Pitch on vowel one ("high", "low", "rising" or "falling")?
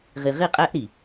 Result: low